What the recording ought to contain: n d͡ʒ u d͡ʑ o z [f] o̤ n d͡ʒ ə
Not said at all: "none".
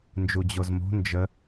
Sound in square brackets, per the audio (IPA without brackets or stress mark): m